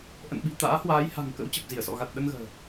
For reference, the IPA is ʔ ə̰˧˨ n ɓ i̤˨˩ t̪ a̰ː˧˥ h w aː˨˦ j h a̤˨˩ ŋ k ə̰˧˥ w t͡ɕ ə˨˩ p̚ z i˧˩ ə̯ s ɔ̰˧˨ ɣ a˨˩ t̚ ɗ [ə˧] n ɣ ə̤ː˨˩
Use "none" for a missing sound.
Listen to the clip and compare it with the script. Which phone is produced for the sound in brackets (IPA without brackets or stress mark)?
ə˧